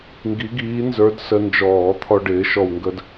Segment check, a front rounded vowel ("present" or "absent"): absent